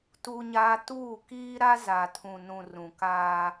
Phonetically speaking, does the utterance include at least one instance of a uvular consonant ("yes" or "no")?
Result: no